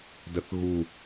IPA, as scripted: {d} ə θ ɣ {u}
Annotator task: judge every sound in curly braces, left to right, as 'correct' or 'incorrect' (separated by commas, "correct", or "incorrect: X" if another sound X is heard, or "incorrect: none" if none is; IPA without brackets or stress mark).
correct, correct